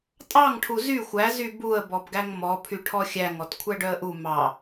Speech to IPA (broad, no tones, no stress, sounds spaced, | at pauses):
tʼ ɑ ŋ ʈʰ u z y xʷ æ z y b u ə̯ b ɔ b ɡ æ ŋ m ɔ pʰ y ʈʰ ɔ xʲ æ ŋ ɔ t kʷʰ æ ɖ œ ə̯ ʔ u m ɑ